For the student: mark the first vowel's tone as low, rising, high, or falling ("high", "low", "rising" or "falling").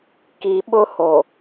low